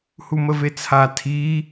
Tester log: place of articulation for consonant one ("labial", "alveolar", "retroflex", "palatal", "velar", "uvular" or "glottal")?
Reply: glottal